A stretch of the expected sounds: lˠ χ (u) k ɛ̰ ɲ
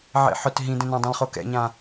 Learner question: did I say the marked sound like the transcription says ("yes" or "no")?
no